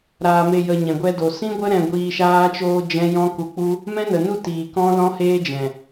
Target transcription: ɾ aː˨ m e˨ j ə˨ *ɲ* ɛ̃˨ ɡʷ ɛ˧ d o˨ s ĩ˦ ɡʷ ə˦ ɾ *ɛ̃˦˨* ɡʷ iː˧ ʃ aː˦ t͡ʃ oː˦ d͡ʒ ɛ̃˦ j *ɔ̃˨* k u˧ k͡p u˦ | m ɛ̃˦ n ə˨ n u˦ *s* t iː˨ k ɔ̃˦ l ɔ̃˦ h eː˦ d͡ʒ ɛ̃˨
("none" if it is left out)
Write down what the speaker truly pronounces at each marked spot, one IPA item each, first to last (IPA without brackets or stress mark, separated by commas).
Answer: ɲ, ɛ̃˧, ɔ̃˦, none